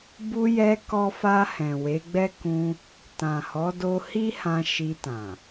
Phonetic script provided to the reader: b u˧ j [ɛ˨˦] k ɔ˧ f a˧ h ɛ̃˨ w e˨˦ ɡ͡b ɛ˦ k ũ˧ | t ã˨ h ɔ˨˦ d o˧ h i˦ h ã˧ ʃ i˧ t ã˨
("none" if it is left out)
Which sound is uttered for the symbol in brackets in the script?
ɛ˧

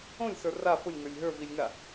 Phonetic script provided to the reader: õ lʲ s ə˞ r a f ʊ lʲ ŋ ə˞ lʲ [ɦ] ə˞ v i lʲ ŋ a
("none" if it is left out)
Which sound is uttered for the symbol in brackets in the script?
ɦ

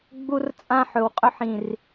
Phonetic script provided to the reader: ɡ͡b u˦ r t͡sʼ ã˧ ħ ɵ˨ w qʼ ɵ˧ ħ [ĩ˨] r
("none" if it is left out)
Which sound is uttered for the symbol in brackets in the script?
ĩ˨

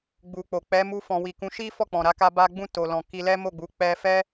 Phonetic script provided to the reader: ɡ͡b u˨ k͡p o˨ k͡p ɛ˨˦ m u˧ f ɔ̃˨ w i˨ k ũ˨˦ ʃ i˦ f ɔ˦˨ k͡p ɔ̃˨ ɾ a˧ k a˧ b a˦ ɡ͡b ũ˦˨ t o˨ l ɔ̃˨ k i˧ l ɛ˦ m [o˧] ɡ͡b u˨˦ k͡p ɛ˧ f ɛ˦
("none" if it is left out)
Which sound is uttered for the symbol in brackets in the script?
o˦˨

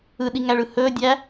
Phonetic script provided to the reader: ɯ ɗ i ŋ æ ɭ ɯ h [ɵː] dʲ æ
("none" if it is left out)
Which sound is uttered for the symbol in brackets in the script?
ɵː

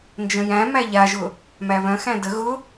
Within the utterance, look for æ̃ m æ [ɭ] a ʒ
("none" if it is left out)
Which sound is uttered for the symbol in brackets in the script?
ʎ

